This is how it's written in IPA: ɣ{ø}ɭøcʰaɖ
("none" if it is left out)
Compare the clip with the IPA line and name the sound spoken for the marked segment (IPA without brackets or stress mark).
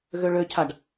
ø